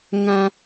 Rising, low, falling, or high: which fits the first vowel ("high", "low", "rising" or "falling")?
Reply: high